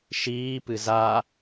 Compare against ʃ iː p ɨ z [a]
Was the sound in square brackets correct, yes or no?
yes